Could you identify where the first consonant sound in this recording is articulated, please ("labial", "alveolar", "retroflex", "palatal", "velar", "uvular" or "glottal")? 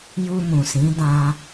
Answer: palatal